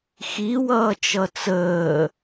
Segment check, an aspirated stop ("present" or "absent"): absent